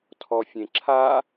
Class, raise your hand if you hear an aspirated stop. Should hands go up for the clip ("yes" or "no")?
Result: yes